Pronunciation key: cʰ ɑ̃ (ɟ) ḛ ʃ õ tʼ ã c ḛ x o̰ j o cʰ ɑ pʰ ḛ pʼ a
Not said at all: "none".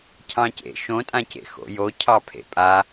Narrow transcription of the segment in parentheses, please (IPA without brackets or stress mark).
c